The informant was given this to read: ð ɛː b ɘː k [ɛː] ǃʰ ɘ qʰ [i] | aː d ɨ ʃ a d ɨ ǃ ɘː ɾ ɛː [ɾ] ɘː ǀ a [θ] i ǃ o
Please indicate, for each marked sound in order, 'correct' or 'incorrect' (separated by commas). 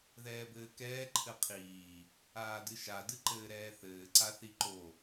correct, incorrect, incorrect, correct